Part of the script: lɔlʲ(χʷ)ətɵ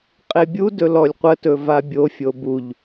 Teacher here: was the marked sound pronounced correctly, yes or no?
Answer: no